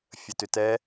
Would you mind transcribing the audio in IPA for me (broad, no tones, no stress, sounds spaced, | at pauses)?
fʲ ə t ʏ t ɛ